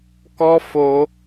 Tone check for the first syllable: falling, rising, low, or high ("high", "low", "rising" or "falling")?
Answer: high